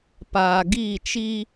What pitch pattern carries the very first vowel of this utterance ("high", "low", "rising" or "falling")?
low